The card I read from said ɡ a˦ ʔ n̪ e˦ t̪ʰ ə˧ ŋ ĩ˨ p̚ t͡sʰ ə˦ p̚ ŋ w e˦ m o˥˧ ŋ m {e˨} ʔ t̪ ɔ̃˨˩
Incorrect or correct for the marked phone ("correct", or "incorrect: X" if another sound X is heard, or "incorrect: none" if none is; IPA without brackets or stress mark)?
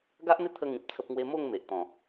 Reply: correct